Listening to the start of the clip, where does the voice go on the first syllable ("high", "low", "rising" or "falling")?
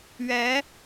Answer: rising